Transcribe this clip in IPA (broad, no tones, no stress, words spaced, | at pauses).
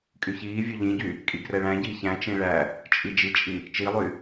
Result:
kʼyçiːvʲø ʎĩɟy | kʼiɡrɛɭæ̃ɟiː çæ̃t͡ʃĩ ɭæ | t͡ʃʼid͡ʒit͡ʃʼi | t͡ʃilˠy